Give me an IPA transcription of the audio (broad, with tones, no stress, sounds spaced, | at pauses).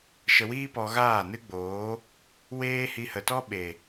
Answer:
ʃ ə˧ w iː˦ p ɔ˧ ɣ aː˦˨ n ɨ˦ ɡ͡b oː˨˦ | w eː˦ h i˧ h ə˨ t ɔ˦ ɓ e˨